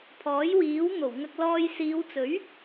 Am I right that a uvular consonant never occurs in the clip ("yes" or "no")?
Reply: yes